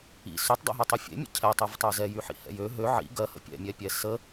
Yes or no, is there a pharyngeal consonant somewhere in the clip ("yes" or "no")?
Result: yes